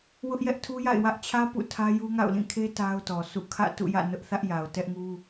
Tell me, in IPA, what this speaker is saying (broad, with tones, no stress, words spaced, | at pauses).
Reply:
wʊ˦ʔjɛ˦ʔtʰu˦ja̰˦˨ɪ̯ wä˦ʔt͡ɕʰä˦ pṵ˦˨tʰä˦ju˦ŋa̰˦˨ʊ̯ lĩ˦˨kʰe˦ ta˦ʊ̯tɔ˨sʰṵ˦˨ kʰä̰˦˨tṵ˦˨jä̰˦˨ nʊ˦ʔθä˦ʔ ja˨ʊ̯tɛ˦ʔŋu˦